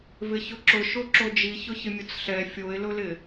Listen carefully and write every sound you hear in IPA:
vɪçʊǁʊ ʃoǁod͡ʒi çʊçɪmʲʊt͡sɬɛ fʲoɪ̯lʊlɪ

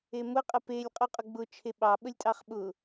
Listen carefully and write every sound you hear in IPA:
emʊ qʼəpelʲ qʼuqʼʊɡ͡bʊ t͡ʃʰeɓɑ ɓəlʲtʼɑχɓʊ

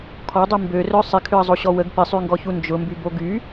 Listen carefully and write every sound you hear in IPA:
kʰɔdˤy mbørœ sˤɪkʰʏə̯zˤoɕɔ wəɡ pɪsˤyŋɡɔçu nd͡ʒʊmbybo ɡy

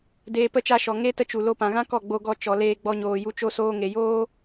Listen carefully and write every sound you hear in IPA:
deː˧pə˦˨t͡ʃa˧ʃɔ˨ ŋe˦ tə˦t͡ʃu˨ lo˧pã˨ɣã˦kɔ˦˨ ɡ͡bo˧ɡɔ˧ t͡ʃɔ˨leː˧ ɡ͡bɔ˧ɲoː˨ju˧ t͡ʃo˧soː˧ŋe˨joː˦

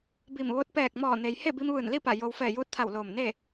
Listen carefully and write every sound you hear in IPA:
bi˧˩mʋo˧˥t̚ pɛː˧˩k̚mɔː˧˩ne˩j he˥˨bi˧mʋɯː˧˩n li˥˨pa˧˩ jo˧w fɛː˧˩juː˧t̚t̪ʰa˧˩w loː˧˩mne˥˨

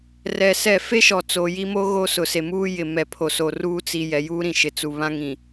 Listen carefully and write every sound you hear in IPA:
rɛ˨sɛ˦˨ fe˦ ʃɔ˨t͡so˨ji˦mo˦ ɣo˦ sʊ˨se˨muː˦ jɪ˨mɛ˨ pʰo˨so˨ruː˦ t͡si˨ jɛ˨juː˦ɾĩ˨ ʃɪ˨ t͡su˨βã˦ŋĩ˨

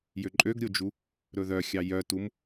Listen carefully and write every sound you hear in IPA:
jøǃʼøɡɾʲod͡ʒu | ɾɵðœxʲɑ jœtum

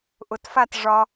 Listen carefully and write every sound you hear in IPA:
ʔʊtfat ʐɒ

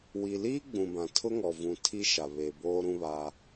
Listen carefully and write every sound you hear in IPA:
wi˨liː˦ ɡ͡bũ˨bã˨ tʰʊ˦ŋɔ˨ vũ˨ tʰi˦ʃa˨ βe˨boː˦ɾũ˦βa˦

